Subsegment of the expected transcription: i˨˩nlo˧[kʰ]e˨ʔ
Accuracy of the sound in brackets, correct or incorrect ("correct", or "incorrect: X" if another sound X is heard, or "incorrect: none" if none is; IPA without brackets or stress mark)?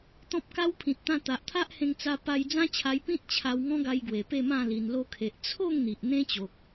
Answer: correct